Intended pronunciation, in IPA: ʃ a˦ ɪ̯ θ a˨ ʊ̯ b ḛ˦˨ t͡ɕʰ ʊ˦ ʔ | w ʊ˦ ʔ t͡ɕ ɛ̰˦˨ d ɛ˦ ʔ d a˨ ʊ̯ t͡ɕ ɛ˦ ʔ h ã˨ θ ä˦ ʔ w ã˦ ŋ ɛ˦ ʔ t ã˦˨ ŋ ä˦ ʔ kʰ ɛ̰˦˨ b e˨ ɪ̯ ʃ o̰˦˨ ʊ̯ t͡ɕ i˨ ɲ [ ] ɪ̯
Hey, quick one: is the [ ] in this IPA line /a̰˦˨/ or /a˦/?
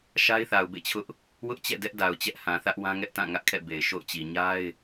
a˦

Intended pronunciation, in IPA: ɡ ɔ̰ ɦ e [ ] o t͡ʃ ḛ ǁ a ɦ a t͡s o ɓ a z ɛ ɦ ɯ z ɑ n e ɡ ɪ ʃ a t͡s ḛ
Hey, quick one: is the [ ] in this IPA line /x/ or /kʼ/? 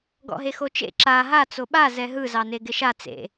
x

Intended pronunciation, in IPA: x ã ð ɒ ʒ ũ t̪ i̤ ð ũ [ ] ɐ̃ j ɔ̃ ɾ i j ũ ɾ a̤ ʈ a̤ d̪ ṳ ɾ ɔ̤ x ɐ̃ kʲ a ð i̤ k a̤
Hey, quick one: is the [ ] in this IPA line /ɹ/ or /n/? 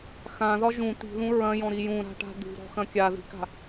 ɹ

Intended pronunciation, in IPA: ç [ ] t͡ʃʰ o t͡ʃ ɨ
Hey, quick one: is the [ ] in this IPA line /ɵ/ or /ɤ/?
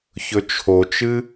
ɵ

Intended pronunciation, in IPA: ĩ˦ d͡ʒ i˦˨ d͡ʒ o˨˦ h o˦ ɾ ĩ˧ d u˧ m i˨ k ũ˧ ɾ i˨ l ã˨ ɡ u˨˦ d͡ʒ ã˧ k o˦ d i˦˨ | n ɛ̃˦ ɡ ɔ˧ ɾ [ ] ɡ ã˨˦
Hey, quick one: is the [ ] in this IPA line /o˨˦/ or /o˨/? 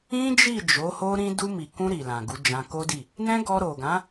o˨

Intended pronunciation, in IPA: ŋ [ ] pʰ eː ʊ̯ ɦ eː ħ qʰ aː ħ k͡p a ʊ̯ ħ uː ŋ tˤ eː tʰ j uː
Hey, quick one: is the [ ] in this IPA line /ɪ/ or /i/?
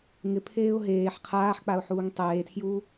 ɪ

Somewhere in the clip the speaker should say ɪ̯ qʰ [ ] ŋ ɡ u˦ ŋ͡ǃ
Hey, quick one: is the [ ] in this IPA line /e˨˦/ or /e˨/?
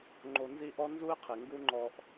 e˨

